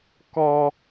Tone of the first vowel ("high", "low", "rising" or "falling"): high